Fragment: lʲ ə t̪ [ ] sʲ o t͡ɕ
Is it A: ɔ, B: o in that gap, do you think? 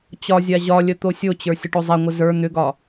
B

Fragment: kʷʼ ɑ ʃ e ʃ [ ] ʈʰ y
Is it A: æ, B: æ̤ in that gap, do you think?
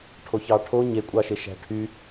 B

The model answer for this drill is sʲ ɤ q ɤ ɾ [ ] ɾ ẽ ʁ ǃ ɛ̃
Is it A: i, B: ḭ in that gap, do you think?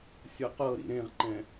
B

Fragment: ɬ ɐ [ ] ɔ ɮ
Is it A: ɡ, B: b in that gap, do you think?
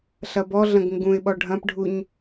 B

